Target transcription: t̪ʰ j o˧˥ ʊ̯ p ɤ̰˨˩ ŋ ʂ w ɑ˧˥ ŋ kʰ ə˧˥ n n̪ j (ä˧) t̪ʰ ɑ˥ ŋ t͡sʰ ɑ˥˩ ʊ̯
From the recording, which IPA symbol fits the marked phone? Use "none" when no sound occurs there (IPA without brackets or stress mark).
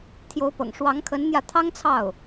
ä˧